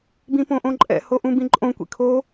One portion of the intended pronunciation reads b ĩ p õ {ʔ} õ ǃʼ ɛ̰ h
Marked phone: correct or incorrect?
correct